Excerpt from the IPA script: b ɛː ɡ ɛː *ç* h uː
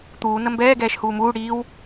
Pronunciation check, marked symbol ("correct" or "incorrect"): incorrect